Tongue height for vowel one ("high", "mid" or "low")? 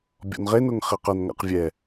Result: mid